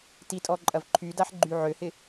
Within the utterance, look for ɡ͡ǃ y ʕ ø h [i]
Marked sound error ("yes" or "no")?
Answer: yes